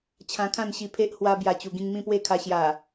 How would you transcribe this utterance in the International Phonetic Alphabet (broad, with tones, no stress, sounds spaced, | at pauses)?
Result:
t͡ɕʰ ã˧ kʰ ã˥˧ n ɕ i˧ pʰ e˦ ʔ h w a˧ b j a˨˩ t͡ɕ u˨˩ ɡ ĩ˧ ŋ m ĩ˥˧ p w e˥˧ kʰ a˧ ɕ j a˨˩